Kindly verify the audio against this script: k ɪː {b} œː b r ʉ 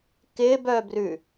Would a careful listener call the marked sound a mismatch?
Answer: no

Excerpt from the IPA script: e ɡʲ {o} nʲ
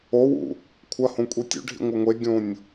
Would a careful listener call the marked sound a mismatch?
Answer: yes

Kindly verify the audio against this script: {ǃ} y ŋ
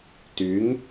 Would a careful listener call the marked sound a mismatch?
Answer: yes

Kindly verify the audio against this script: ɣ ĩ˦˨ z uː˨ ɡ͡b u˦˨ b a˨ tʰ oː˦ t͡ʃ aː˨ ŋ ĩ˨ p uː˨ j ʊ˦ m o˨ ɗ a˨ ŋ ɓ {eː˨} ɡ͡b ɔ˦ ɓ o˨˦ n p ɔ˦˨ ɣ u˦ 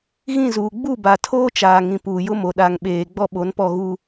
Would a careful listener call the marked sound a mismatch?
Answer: no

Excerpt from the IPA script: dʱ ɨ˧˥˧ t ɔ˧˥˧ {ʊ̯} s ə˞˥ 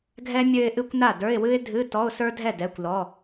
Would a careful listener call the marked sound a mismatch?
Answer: no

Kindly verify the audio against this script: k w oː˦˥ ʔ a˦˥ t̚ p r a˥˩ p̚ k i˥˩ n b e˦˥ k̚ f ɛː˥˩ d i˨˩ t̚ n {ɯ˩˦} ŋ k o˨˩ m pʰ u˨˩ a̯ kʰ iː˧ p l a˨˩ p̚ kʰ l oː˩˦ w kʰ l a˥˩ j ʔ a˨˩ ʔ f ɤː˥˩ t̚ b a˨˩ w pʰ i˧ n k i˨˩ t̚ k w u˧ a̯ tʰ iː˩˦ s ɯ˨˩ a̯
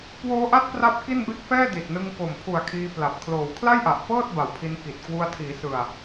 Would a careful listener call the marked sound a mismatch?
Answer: yes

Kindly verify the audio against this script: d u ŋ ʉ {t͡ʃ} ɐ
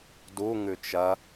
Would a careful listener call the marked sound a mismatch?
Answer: no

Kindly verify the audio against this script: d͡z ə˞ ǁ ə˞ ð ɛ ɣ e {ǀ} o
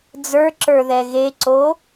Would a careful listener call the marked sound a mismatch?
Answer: no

